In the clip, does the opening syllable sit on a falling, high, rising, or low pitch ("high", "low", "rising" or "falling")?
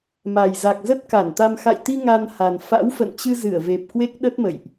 low